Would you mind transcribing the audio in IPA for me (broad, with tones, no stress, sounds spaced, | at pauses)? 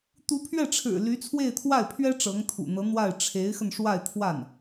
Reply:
t̪ u˧˥ pʰ ɥ ɛ˥˩ ʈ͡ʂʰ ɻ̩˨˩ l y˧˥ t͡sʰ w e˥˧ ɪ̯ t̪ʰ w a˥˩ ɪ̯ pʰ ɥ ɛ˥ ʈ͡ʂ ɤ˧˥ ŋ t̪ʰ ṵ˨˩ n̪ ɤ˧˥ n̪ w a˥˩ ɪ̯ ʈ͡ʂʰ e˧˥ ɪ̯ x ə˧ n ʂ w a˥˧ ɪ̯ t̪ʰ w a˥˩ n